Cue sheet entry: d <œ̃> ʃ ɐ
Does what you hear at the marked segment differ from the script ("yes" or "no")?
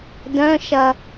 no